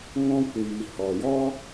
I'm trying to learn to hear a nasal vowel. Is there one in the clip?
yes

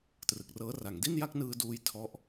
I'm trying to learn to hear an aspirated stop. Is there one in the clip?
yes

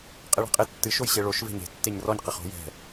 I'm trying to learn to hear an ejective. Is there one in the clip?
yes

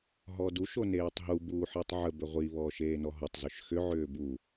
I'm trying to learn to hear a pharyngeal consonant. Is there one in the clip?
yes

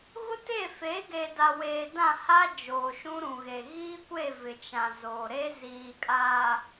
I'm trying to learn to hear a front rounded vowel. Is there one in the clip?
no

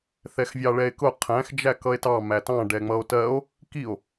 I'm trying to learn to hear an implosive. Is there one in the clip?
no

